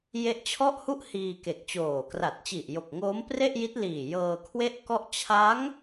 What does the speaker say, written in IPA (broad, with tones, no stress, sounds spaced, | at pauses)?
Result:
j e˦˥ ʔ t͡ɕʰ ɔ˥˩ ʔ h u˥˩ ʔ h iː˧ k e˨˩ k̚ t͡ɕ oː˨˩ k r a˨˩ t̚ t͡ɕ i˨˩ ʔ j o˨˩ k̚ ŋ oː˦˥ m p r e˥˩ ʔ j i˦˥ t̚ l iː˨˩ j ɤː˧ kʰ w e˥˩ ʔ k ɔ˥˩ ʔ t͡ɕʰ a˦˥ ŋ